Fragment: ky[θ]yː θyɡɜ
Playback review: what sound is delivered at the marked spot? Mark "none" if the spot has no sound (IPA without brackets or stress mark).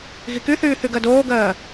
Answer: θ